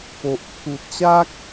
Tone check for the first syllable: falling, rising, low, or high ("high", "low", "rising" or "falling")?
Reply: low